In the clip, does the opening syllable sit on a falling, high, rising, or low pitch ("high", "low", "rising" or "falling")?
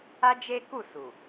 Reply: high